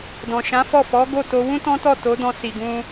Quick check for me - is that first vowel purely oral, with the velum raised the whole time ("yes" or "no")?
no